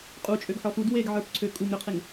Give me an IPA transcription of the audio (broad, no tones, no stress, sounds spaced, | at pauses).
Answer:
qʼ u t͡ʃʼ ø ɡ ħ ɔ f u d w e ɡ ʕ ə˞ p ǀʰ ø kʼ u ŋ ɾ ø qʰ e ŋ